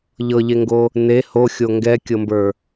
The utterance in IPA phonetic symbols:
ʎ ɤ ʎ e ŋ ɡ o | n e h o xʲ o ŋ ɡ ɛ kʲ ɤ m b ə˞

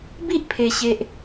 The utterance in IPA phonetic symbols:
b i˦ ʔ pʰ e˨˩ ɕ e˨ ʔ

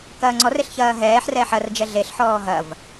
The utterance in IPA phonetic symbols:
k ɐː ŋ͡ǀ ɔ r e ɬ ç ɐː ɦ ɛː ħ r ɛː ħ ɐ r d͡ʒ ɛ ɮ e ɬ ħ ɔː ɦ ɐ v

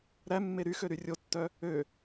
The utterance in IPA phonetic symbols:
ɾ æ mː e ɾ y x ø ɾ y rʲ o tː œ | ø

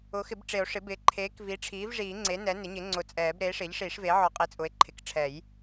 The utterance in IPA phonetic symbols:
ʊ˩˥ x ɪ˨˩˦ b ʈ͡ʂ e˨˩˦ o̯ ʂ ɪ˩˥ b ɪː˩˥ ǃʰ eː˩˥ k v i˩˥ ʈ͡ʂʰ iː˩˥ v ʐ iː˨˩˦ ŋ͡ǀ e˩˥ n ɛ˩˥ n ɪ˩˥ ɲ ɪ˩˥ ŋ͡ǀ ʊ˨˩˦ t͡sʼ ɛː˨˩˦ b ɾ eː˩˥ ʂ ɪː˩˥ ʎ ʂ iː˨˩˦ ʂ v eː˩˥ ʕ ɔ˨˩˦ qʼ i˩˥ t͡sʼ ʊ˩˥ e̯ ǃʰ ɪ˩˥ k ʈ͡ʂʰ ɛ˨˩˦ j

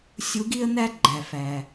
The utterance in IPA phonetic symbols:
sʲ u˧˥ ɡ i˥ ə̯ n̪ æ˥ ɡ͡ǃ æ˩ f æ˩

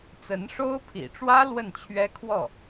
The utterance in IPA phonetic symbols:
t͡s ə˧˥ n ʂ o˥ ʊ̯ pʰ ḭ˨˩ ʈ͡ʂ w ä˥ l w ə˥˩ n t͡ɕʰ ɥ ɛ˥ kʰ w ɔ˥˩

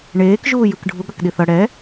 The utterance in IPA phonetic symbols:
ɳ eː k ʒ uː j ɯ k ɖʱ u ɠ ʌ k ɗ i θ ʌ ɽ ɛ

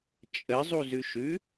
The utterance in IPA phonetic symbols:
t͡ʃʼ ə zˤ u z ʉ ʃ ʉ

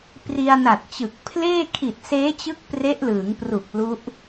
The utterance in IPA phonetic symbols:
p r i˧ a̯ n a˨˩ t̚ t͡ɕ ɯ˨˩ k̚ pʰ l eː˥˩ kʰ i˨˩ t̚ s eː˦˥ t͡ɕ ɯ˦˥ k̚ p r e˦˥ ʔ l ɯː˩˦ ŋ p r u˨˩ k̚ l u˦˥ ʔ

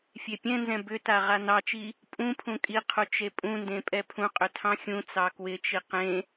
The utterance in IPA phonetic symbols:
fʲ e pʲ ɛ̃ n z ɛ̃ b ʏ t a ʁ a n ɑ t͡ʃ i | pʼ ũ pʰ ũ kʼ i qʰ u t͡ʃ e pʼ ũ n d ẽ pʼ ɛ pʰ ũ qʼ ʏ tʰ ɑ̃ xʲ ũ t͡s ɑ k w ɪ t͡ʃ i q ẽ

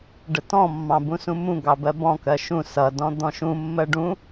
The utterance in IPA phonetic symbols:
ɖ ə t ɔ̃ mː ɑ̃ b ũ s ũ m ũ ɡ ɑ b ɜ b ɔ̃ k ɜ ʃ ũ s ʌ d ɔ̃ d̪ ɔ̃ ʃ ũ mː ɜ ɖ ũ

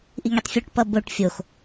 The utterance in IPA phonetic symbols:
ʔ i ŋ i tˤ fʲ u ʈ p ʌ b o ʈ fʲ o x

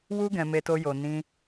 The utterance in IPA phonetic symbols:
w u˦ ɡ ɛ̃˧ m e˧ t o˧ j o˨ n ĩ˧

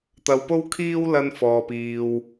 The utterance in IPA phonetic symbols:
t̪ ɐ˧ w p o˥ w kʰ iː˥ w l ɐ˥ n f ɔː˧ p iː˧ w

